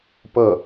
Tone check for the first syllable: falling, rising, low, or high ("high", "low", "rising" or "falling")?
falling